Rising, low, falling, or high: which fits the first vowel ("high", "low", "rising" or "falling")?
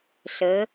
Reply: rising